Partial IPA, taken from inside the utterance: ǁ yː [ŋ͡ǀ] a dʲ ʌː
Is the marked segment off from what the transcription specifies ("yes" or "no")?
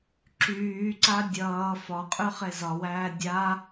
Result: yes